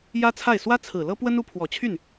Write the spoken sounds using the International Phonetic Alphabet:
j ä˥ t͡sʰ a˥˩ ɪ̯ s w ä˥ t͡sʰ ɹ̩˨˩ l ɤ˥ p w ə˥ n u˧˥ pʰ w ɔ˨˩ t͡ɕʰ y˥˩ n

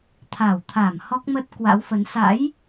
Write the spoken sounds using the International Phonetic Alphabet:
t̪ʰ a˧˩ w t̪ʰ a˧˩ m h ɔ˦˥ k̚ m ə˦˥ t̚ k w a̰˧˥ w f ə˨˦ n s a̰˧˥ j

